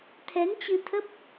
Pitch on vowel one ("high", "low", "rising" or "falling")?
rising